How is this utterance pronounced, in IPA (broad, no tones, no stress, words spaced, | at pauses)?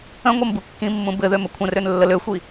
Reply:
ə̃ ŋʷɤmbukːĩmːũ bɘðøm əkʷʰə̃røn lːəløxʷi